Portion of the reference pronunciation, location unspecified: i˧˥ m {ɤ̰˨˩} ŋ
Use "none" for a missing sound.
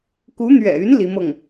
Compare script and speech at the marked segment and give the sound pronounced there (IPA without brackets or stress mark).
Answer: ɤ˥˩